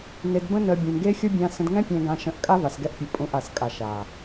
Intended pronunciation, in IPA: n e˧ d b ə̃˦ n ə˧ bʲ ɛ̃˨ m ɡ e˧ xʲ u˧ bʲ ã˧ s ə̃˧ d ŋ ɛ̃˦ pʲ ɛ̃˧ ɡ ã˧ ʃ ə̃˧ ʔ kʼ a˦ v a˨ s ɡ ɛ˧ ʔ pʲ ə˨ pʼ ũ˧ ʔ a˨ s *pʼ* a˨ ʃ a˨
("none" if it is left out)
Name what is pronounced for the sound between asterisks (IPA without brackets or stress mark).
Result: kʼ